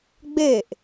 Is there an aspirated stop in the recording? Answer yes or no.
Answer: no